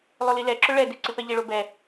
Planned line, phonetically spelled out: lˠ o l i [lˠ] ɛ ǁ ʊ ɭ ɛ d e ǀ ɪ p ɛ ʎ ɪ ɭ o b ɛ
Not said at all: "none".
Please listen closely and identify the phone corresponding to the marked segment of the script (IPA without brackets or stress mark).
l